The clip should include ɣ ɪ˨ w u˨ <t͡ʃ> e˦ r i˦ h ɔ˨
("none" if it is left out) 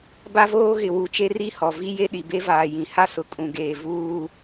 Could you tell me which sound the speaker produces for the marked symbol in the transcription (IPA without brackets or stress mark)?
t͡ʃ